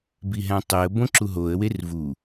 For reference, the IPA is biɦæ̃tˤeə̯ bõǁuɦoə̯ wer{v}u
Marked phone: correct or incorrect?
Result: correct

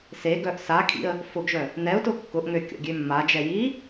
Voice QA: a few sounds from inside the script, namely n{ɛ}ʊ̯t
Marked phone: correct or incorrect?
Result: correct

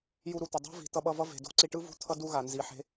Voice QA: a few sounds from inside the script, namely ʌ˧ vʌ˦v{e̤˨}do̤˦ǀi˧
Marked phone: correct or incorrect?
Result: correct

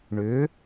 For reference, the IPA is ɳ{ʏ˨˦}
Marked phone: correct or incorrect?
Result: correct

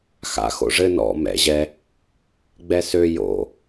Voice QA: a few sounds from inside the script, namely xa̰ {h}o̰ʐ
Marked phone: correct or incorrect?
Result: incorrect: x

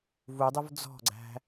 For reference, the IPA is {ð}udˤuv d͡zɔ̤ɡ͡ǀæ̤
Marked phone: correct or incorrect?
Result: incorrect: v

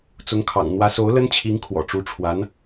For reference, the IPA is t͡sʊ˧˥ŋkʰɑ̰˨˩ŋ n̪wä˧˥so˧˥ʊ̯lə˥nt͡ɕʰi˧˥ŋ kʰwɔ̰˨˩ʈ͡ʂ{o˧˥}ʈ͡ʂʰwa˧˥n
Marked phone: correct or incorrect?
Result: incorrect: u˧˥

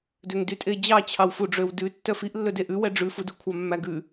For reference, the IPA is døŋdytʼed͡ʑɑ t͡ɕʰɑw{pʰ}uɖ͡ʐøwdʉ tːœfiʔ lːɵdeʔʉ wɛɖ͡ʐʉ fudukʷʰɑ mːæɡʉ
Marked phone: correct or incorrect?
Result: incorrect: f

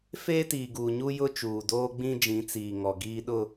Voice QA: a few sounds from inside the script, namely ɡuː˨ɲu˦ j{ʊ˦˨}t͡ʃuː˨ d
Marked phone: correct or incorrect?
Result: incorrect: ʊ˦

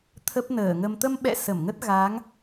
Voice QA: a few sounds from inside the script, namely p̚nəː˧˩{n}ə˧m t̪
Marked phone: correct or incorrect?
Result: incorrect: ŋ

